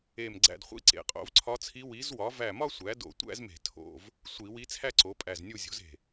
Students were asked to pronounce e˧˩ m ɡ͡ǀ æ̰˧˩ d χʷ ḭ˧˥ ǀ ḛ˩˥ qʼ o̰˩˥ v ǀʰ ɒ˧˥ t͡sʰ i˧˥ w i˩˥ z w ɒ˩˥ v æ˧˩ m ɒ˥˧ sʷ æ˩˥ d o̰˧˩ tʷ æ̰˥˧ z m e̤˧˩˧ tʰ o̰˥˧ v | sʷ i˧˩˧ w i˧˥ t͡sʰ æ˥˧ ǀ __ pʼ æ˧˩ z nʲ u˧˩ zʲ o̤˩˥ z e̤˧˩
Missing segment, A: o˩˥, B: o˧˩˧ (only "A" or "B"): A